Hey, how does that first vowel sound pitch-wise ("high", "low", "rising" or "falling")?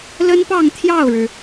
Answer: high